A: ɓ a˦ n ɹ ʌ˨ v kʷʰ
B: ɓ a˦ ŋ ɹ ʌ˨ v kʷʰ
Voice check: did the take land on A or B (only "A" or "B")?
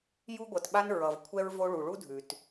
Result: A